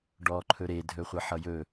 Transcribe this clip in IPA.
ɖ ɔː ǃʰ ɵ ɾ e dʱ ɵ χʷ ʌ ħ ʌ j ɵ

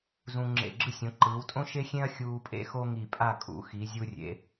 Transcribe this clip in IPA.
z ũ˧ ŋ͡ǁ ḛ˧˩ ɡ͡ǁ ɯ˥ sʲ õ˩˧ ǃ ɯː˩˧ w tʼ õ˥ ʃ e˥ xʲ ẽ˥ ɐ̯ xʲ uː˧ pʼ ḛ˥ x o˥ ŋ i˧˩ pʼ a˥˧ kʼ ṵ˩˧ x i˩˧ zʲ u˧ rʲ ḛ˩˧

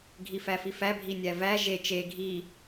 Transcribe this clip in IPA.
ɡʱ i f æ f i f æ bʱ i nʲ æ v æ ʒ e t͡ʃ e ɡʱ i

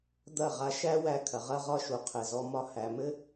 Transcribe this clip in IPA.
d̪ ɐ˦˨ ʁ a˧ ʃ æ˦ w æ˧ kʰ ɐ˨ ʁ ɐ˦ ʁ ɒ˦ ʃ u˨ qʰ ɘ˨ z ɔ˧ m ɒ˧ h æ˨ m ɘ˦

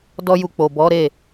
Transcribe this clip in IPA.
d ɔ˦ j u˧ k͡p o˨ b ɔ˨˦ ɾ e˦˨

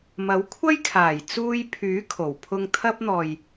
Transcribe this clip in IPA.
m ɐ˨˥ w kʷʰ ɐ˥ j kʰ aː˨˩ j t͡s uː˧ j pʰ yː˨˥ kʰ o˨˩ w pʰ ʊ˧ ŋ t̪ʰ ɐ˥ p̚ n̪ ɔː˨ j

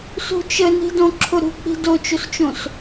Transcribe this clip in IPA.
s ṳ t͡ʃ ə n i̤ d õ ǁʰ ʊ ɾ ṳ k͡p i̤ d o t͡ʃ o s t͡ʃ õ s

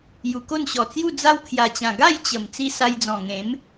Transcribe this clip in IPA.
j u˨˩ k o˥˧ n ɕ ɔ˨˩ t͡s j u˥˧ d͡z a˦ w kʰ j a˨˩ t͡ɕ ã˨˩ ɡ a˥˧ j t͡ɕ ə˨˩ m t͡s i˧ s a˧ j d͡z ɔ̃˨˩ ŋ ẽ˨˦ m

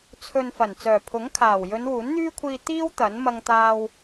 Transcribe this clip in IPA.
t͡sʰ ɵ˨ n f ɐ˨˩ n t͡s œː˨˩ pʰ ʊ˨˥ ŋ kʰ aː˨˩ w j ɵ˨˧ n w uː˨˥ n n̪ yː˥ kʷʰ iː˧ t̪ iː˥ w t̪ ɐ˨˥ n m ɐ˧ ŋ t̪ aː˧ w

